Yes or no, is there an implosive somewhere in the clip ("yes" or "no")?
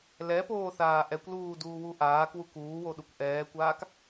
yes